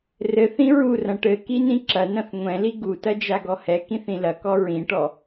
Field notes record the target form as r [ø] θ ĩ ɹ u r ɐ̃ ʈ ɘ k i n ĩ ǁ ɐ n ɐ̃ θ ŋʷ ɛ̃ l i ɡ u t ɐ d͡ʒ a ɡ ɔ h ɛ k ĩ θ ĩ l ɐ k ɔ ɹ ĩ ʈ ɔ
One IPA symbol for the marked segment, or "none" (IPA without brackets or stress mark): ɘ